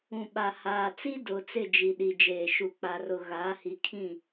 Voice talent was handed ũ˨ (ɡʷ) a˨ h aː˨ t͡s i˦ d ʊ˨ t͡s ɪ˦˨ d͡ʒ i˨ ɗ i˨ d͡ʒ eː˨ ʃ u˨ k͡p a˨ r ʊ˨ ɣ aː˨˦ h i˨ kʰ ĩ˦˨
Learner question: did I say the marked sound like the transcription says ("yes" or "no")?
no